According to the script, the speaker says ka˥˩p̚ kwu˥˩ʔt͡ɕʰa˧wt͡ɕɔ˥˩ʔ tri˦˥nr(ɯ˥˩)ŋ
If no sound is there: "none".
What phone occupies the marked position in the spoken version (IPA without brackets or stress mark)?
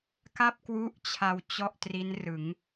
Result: ɯ˩˦